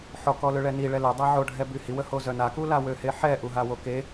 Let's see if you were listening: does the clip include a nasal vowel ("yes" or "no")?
no